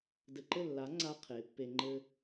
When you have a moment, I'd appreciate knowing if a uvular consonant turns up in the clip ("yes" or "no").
yes